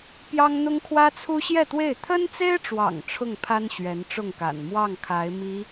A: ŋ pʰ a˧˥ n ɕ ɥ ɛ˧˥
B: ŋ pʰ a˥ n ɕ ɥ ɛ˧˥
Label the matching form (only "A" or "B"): B